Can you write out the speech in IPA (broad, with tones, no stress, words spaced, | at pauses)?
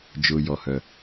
d͡ʒʊː˩ jɔ˩hœ˩